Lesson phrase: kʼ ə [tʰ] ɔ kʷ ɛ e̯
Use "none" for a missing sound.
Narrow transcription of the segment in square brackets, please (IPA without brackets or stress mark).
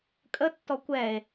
tː